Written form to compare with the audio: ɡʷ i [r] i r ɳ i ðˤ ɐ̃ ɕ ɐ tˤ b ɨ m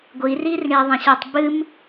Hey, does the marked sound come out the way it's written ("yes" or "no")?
yes